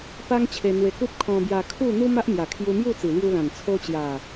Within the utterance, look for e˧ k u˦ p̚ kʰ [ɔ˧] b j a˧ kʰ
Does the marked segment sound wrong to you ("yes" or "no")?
yes